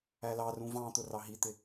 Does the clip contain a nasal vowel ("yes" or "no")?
yes